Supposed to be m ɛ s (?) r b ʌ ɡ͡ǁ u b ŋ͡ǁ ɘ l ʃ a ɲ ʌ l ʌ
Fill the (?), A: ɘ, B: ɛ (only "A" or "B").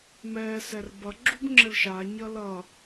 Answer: B